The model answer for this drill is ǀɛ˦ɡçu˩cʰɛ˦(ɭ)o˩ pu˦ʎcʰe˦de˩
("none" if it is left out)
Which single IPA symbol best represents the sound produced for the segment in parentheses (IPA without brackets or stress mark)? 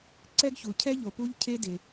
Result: ʎ